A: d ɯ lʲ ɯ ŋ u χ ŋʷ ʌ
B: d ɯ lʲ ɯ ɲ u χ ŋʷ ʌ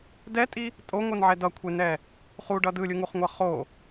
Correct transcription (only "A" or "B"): A